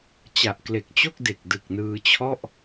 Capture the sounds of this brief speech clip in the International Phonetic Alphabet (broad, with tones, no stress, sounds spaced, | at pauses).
t͡ɕ a˨˩ ʔ k l e˨˩ k̚ t͡ɕ o˥˩ k̚ d e˨˩ k̚ d ɯ˨˩ k̚ n ɯː˧ t͡ɕʰ ɔ˥˩ ʔ